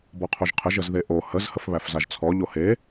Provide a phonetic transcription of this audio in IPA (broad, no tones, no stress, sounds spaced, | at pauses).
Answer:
b ɔ qʰ o ʒ qʰ ə ʒ ə z ð e ʔ o h ə z h ə f β æ f z a ʒ t͡sʰ ɔ ʎ o h e